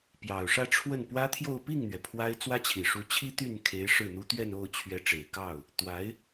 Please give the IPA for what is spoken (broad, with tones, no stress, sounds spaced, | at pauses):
p j ɑ˨˩ ʊ̯ ʂ ä˥˧ ʈ͡ʂʰ w ə˥˩ n p w ä˥ t̪ʰ j o˥˧ ʊ̯ p i˥˩ ŋ n̪ ɥ ɛ˩ pʰ w a˥ ɪ̯ t͡s w ä˥ t͡ɕʰ i˨˩ ʂ u˧˥ t͡ɕʰ i˥ t̪ y˥˩ n kʰ e˧˥ ɪ̯ ʂ ɻ̩˥˩ n̪ u˥ t̪ ɥ ɛ˥˧ n o˥˩ ʊ̯ t͡ɕʰ ɥ ɛ˧˥ ʈ͡ʂ e˨˩ ɪ̯ k ɑ˥˩ ʊ̯ | t̪ w a˧˥ ɪ̯